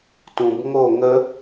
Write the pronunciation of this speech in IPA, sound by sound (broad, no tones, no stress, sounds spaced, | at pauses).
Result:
t ũ b ŋ o ŋ ə